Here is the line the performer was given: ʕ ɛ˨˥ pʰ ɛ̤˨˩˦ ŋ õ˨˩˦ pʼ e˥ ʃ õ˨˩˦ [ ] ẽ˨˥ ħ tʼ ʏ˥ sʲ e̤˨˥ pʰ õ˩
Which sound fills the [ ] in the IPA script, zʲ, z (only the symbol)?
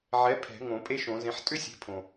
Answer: z